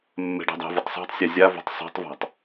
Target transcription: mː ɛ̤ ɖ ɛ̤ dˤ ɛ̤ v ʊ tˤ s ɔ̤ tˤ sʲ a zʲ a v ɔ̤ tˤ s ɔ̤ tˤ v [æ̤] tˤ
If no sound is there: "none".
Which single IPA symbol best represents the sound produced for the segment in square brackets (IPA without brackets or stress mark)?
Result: a̤